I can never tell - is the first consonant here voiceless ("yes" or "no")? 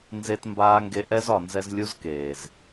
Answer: no